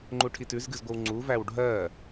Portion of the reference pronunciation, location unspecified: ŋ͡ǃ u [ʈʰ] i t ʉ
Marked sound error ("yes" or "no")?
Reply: no